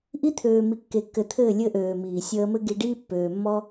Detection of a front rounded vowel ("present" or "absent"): present